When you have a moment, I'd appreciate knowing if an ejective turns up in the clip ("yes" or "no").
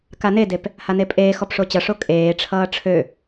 yes